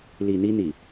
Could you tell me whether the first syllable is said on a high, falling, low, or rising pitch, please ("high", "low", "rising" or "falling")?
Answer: low